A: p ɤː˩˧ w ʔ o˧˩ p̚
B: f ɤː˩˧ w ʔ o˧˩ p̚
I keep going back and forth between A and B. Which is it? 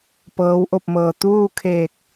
A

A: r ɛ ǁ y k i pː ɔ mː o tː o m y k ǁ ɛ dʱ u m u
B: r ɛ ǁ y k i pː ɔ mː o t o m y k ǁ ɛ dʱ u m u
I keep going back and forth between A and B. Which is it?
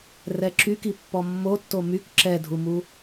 A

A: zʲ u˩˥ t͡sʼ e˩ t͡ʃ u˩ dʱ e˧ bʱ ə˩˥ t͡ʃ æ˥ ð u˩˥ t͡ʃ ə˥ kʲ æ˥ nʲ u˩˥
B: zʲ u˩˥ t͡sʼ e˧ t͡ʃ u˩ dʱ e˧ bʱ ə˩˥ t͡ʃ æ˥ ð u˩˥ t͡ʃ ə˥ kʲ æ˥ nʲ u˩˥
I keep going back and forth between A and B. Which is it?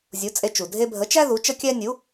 B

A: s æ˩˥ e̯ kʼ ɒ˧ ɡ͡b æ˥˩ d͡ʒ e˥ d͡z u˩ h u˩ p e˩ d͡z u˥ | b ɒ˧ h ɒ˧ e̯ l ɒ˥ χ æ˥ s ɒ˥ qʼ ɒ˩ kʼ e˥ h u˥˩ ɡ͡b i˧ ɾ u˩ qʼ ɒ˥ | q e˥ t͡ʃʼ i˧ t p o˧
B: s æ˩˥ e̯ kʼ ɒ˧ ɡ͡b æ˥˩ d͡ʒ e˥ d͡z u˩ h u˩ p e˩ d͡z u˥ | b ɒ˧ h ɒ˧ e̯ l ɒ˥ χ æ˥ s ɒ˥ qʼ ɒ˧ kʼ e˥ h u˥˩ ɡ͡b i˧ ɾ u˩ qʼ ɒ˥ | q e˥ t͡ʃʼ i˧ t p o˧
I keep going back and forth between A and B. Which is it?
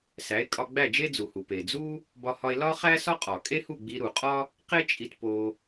A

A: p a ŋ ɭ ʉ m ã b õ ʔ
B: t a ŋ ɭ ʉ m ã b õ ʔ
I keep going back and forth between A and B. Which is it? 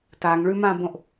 B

